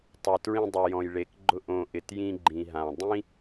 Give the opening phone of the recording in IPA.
tˤ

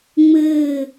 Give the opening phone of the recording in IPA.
ŋ͡m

